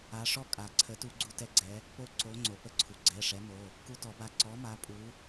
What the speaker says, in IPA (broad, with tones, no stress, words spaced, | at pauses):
a˨˦ʂɔ˥˨kʼa˨˩˦ǀʰə˨˦ tu˦ɡ͡ǀu˦ tɛ˦ɡ͡ǀɛ˨˦ | po˦ ǀo˨˦ŋ͡ǀo˩pə˥˨ǀʰu˩ ɡ͡ǀɛ˩˧˩ʂɛ˨˦mo˩˧˩ | ku˦tɔ˨˩˦ba˨˦ ǀɔ˨˦ ma˨˦pʼu˨˦